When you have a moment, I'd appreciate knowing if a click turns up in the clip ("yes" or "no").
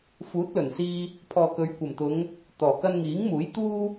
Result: no